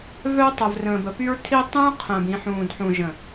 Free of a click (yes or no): yes